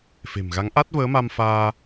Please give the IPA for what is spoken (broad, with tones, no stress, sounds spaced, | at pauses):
f e̤˨˩ m ɣ a˨˦ ŋ ʔ a˦˥ t̚ v əː˨˦ m a˧ m f aː˧